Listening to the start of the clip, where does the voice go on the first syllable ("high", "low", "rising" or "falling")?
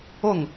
falling